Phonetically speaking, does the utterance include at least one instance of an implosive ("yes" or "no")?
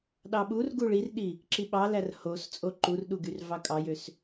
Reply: yes